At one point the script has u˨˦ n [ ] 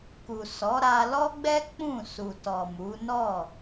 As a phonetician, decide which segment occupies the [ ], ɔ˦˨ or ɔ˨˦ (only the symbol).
ɔ˦˨